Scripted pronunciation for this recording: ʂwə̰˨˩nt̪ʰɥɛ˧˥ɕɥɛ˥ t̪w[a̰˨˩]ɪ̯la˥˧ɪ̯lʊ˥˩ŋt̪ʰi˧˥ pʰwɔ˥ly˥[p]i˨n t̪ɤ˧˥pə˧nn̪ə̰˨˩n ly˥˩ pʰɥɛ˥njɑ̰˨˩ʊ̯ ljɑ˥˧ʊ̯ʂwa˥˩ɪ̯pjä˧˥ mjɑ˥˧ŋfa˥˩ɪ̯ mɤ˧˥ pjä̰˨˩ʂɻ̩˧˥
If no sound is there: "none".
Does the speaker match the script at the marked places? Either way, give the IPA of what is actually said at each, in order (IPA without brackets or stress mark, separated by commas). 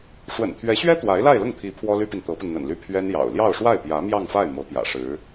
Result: a˧˥, p